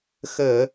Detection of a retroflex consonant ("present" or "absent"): absent